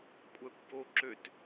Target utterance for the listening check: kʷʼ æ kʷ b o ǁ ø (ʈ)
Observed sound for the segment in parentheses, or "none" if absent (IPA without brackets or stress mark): t